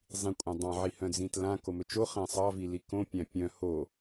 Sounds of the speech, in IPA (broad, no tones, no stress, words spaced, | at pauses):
zˤĩkʷʼãdˤɑ̃ ʕihœ̃d͡zĩtlã komɵt͡ʃo χæ̃sˤɑvili kõpʲæ̃ pʲœ̃ ho